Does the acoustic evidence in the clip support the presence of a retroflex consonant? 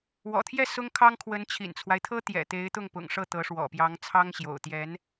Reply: yes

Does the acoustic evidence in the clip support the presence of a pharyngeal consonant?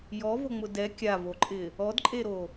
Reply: no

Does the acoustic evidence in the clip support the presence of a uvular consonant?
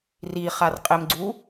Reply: yes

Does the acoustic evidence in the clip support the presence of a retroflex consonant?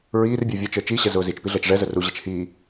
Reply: yes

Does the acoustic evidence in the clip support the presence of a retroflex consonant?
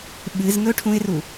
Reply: yes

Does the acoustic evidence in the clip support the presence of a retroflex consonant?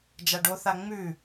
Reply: yes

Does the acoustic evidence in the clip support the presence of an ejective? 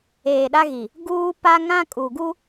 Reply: yes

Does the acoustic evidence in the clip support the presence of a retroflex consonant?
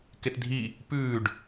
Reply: yes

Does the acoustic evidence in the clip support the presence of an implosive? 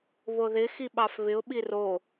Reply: yes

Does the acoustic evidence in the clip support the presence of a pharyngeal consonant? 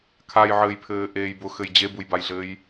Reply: yes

